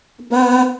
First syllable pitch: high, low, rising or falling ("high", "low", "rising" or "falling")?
high